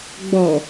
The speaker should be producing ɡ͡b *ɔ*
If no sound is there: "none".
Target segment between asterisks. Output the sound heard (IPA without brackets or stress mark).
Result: ɔ